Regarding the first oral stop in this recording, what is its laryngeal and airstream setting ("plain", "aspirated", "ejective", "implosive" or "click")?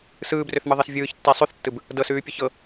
plain